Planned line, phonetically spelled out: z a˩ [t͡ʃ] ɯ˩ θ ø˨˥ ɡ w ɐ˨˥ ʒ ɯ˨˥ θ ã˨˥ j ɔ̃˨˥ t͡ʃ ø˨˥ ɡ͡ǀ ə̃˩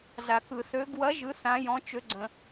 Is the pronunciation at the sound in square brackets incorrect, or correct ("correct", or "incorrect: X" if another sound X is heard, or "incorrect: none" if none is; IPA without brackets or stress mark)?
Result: incorrect: k